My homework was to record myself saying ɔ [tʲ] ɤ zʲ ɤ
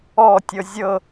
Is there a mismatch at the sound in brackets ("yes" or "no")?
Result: no